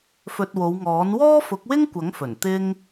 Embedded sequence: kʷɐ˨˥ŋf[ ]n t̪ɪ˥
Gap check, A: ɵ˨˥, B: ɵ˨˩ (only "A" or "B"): B